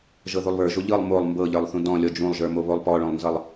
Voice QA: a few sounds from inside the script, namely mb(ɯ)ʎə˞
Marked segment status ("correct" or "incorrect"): incorrect